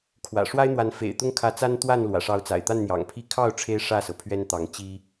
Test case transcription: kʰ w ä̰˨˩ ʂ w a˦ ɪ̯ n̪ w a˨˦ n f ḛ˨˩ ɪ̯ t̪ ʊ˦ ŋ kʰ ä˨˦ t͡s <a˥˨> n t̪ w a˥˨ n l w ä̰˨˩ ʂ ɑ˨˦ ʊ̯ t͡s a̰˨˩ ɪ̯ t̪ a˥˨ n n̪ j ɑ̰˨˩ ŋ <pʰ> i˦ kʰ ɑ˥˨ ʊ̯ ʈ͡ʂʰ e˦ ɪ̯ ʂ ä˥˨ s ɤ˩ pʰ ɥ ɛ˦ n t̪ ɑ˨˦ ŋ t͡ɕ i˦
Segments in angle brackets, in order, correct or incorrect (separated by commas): incorrect, correct